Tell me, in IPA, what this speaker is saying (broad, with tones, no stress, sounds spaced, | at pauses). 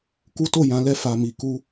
k u˦ t o˦˨ j ã˨˦ l ɛ˧ f a˨ m i˨ k u˧